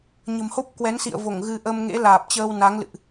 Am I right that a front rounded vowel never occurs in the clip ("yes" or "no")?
yes